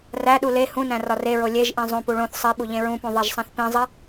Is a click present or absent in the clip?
absent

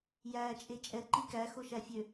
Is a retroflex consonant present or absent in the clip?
absent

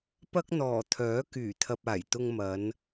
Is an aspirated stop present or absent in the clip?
present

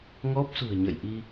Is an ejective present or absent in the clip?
absent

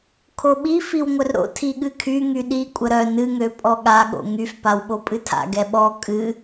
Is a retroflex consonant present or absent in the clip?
absent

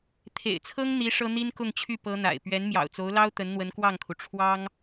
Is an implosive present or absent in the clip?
absent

